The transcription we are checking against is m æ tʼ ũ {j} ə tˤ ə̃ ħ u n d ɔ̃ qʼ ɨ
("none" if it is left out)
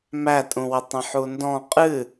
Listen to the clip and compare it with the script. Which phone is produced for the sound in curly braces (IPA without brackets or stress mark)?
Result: w